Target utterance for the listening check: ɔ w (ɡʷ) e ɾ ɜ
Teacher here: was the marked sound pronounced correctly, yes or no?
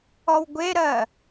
yes